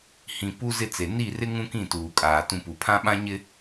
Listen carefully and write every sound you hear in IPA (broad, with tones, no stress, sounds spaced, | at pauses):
h ĩ˨ p u˦ z ɪ˦ t͡s e˨ n i˦˨ r ɪ˦ ŋ ũ˦ k ĩ˦˨ t uː˨ kʼ aː˨ t ũ˨ p u˨ pʰ ã˦ ɓ ã˦ ɲ ɪ˦